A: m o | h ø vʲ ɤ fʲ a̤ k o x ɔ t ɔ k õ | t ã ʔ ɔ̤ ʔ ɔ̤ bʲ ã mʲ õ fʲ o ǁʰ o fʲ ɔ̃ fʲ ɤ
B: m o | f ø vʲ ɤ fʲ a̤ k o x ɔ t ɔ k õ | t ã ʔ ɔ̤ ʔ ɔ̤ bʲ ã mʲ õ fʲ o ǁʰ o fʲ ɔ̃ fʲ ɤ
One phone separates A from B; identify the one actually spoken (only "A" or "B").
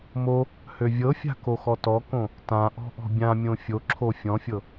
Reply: A